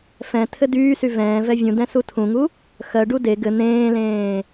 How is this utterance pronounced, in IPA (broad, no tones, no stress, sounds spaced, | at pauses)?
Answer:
f ɛ̃ tʰ ɘ d yː s y v ɛ̃ː v ɛ vʲ ũ d ɛ̃ s u tʰ ũ ŋ u | x ɜ ɖ u d e ɡ ɘ n̪ ẽː l ẽː